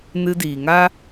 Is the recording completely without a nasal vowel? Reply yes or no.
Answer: yes